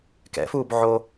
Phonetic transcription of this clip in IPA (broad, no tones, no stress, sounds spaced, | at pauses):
k ɛ̰ f uː b ʕ o